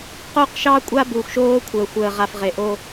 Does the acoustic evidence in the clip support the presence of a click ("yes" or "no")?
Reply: no